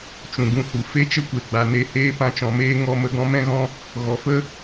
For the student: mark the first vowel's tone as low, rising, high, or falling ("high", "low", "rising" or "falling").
low